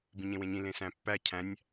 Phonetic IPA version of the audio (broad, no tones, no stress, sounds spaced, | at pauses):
b ĩ ɲ ẽ w ẽ ɲ ĩ l ẽ s æ̃ pː æ cʰ æ̃ nʲ